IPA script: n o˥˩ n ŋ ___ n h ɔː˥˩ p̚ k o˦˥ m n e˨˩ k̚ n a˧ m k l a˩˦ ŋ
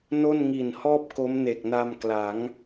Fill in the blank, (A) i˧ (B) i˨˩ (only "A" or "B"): B